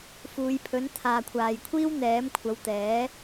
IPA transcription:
f uː˨˧ j pʰ ɵ˨˥ n t̪ʰ aː˨ kʷʰ aː˨ j kʷʰ iː˥ w n̪ ɛː˨˥ m kʷʰ ɐ˨˧ w t̪ ɛː˨˥

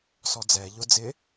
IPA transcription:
s ɔ d͡z ɛ ʎ ʊ d͡z ɪ

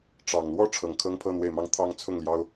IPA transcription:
ʈ͡ʂ ɑ˨˩ ŋ l w ɔ˥˩ ʈ͡ʂʰ ɤ˨˩ ŋ kʰ ɤ˥ ŋ pʰ ɤ˥˧ n̪ w e˥˧ ɪ̯ m ɑ˥˧ ŋ t̪ʰ ɑ˥˧ ŋ t͡sʰ ʊ˥˩ ŋ l j ɑ˥ ʊ̯

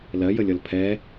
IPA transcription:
l ɜ j ə lʲ ʌ l pʰ ɛ

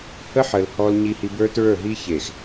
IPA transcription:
h ə˦ ħ ə˨ l h ɔ˦ l ɲ i˦ h i˦ b ə˞˦ t ɹ ə˞˦˨ ɦ i˦ ç e˨ x

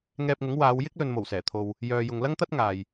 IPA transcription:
ŋ ɛː˧ p̚ ŋ ʊ˨˥ ŋ w aː˨˧ w j ɪ˥ k̚ l ɵ˨ n m o˨˩ w s ɛː˨˩ t̪ʰ o˨ w | j œː˨ j ʊ˨ ŋ l ɐ˥ ŋ t̪ ɐ˥ t̚ ŋ aː˨ j

